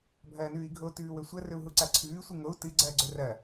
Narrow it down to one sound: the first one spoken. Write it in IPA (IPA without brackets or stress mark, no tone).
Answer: bʱ